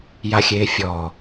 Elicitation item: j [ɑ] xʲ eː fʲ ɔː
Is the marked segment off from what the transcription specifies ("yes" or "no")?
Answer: yes